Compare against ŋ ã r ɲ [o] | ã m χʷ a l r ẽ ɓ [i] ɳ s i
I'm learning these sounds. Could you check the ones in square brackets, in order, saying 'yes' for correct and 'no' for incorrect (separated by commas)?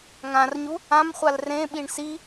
no, yes